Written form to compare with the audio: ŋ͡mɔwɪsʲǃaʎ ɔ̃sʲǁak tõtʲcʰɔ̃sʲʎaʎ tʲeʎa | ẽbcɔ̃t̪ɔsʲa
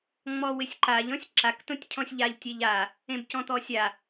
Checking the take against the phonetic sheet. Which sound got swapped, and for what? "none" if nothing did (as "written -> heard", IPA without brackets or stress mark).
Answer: none